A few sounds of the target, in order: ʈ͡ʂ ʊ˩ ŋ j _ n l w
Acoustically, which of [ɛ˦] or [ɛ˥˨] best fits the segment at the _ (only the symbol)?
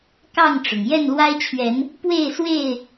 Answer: ɛ˥˨